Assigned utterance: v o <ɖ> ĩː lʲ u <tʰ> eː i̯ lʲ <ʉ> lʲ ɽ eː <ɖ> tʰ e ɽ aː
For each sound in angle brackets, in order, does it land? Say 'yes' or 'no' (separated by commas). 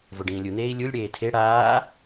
yes, no, no, no